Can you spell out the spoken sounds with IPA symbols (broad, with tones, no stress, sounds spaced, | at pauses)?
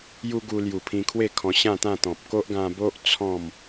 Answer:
j u˦ ɡ u˧ l j u˨˩ pʰ ĩ˧ kʰ w e˥˧ kʰ ɔ̃˧ ɕ ã˥˧ t̪ ã˥˧ t̪ ɔ̃˨ p̚ k o˦ ʔ ɡ ã˧ b o˦ ʔ t͡sʰ ɔ̃˥˧ m